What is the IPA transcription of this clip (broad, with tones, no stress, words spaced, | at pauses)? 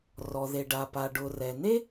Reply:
rɔ˩ðe˩ɖa˩ pa˩ɖʊ˩ rɛ˩ne˥